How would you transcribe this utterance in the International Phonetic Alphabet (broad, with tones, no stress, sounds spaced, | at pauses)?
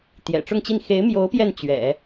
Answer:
t̪ j ɛ̰˨˩ ʈ͡ʂ ʊ˥˧ ŋ t͡ɕ i˥˩ n x e˧˥ ɪ̯ m j o˧˥ ʊ̯ p j ɛ˥˩ n t͡ɕ ɥ ɛ̰˨˩˦